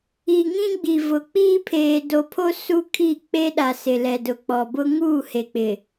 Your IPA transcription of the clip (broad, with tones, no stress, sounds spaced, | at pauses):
i˨ ŋ ĩ˦ ɡ͡b i˨ v ʊ˨ k͡p iː˦ pʰ eː˨ d o˨ pʰ o˦ s u˦ kʰ i˦˨ k͡p e˦ ɗ a˨ s ɪ˨ l ɛ˨ d ʊ˨ k͡p ɔ˨ b ʊ˦ ŋ uː˦˨ h e˨ k͡p ɪ˨